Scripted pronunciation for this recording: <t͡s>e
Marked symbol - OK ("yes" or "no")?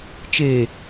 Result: no